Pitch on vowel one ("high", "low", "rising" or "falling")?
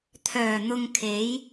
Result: low